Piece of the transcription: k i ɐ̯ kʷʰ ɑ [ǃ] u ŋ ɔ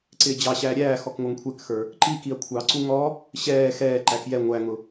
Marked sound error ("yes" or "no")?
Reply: yes